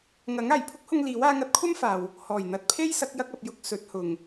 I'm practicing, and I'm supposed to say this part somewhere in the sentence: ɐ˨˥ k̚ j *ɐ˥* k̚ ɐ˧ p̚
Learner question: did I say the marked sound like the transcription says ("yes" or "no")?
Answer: yes